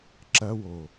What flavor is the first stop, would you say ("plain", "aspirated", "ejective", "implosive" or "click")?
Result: click